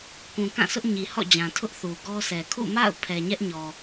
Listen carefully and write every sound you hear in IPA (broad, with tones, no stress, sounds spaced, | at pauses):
k ũ˨ k ã˦˨ s ʊ˦ ʔ ɲ i˨ h ɔ̰˦˨ d͡ʑ ã˨ tʰ ʊ˦ ʔ θ u˨ ɡ ɔ˦ sʰ ɛ˨ kʰ ṵ˦˨ m a̰˦˨ ʊ̯ pʰ ɛ˨ ɲ ɛ˦ ʔ ɲ ɔ˨